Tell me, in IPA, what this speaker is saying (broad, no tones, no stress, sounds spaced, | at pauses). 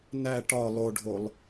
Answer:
n æ ʈ ɒ lˠ o ɖʱ o lˠ